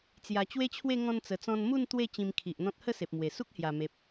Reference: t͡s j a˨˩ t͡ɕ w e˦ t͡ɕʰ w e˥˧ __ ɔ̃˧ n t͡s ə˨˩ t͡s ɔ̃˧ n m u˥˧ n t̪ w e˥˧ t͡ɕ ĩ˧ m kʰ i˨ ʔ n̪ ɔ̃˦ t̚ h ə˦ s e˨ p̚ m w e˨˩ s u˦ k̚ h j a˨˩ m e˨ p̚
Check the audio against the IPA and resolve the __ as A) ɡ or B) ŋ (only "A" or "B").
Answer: B